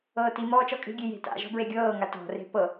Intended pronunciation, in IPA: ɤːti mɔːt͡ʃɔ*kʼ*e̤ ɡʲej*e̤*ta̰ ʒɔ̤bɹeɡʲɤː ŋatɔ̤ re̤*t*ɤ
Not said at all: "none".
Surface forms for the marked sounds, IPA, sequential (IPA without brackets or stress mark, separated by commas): kʼ, e̤, p